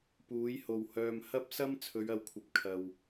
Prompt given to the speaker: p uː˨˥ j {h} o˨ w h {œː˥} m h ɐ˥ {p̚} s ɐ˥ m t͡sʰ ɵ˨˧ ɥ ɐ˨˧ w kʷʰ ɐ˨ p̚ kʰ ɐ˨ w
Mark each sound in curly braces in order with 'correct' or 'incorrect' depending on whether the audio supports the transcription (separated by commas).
correct, incorrect, correct